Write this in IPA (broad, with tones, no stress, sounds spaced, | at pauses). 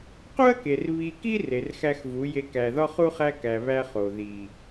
q u˦ ɐ̯ k e˨ r β i˨ k i˦ r e˨ r x æ˦ x v u˨˦ j e˨ k æ˨ ð ɒ˦ χ u˦ χ æ˦ k æ˨ β æ˦ χ o˨ ð i˨